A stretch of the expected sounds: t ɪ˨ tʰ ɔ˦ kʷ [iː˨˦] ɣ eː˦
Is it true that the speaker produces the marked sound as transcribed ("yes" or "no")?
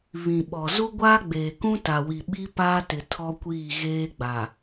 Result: no